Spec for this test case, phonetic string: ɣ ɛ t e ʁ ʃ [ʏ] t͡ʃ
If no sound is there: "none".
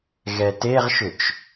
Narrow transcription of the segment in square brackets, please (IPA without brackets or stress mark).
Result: ʏ